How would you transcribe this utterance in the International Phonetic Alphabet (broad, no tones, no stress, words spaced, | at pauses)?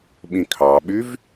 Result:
ɓĩkʰɑɓyv